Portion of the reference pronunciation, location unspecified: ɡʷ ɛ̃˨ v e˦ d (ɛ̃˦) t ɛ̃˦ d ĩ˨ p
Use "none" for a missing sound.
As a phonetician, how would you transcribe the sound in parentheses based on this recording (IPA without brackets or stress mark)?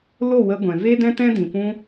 ɛ̃˦